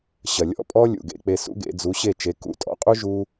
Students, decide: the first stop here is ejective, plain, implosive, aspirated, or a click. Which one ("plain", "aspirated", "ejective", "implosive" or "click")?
ejective